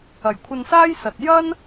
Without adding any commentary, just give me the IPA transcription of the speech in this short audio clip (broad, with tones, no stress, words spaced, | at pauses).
ɐ˨˩jkʷʰɐ˧nsaː˥j sɐ˨t̚ jɐ˥n